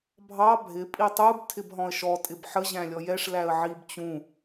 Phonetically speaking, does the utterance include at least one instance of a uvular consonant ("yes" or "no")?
no